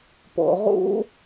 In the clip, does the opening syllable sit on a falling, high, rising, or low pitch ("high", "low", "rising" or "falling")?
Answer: low